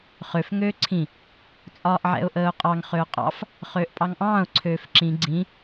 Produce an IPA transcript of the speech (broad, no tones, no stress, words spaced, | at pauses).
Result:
χøf ŋøːǀʰĩ | t͡sʼɒːʔʕɛ̰ʊ̯ʔəːʊ̯qʼɑŋ χøʊ̯qʼɑ̰f | χøːʔpʼɑŋʔɑ̃ːʊ̯ ǀʰøːfǁĩ ɡ͡ǀĩ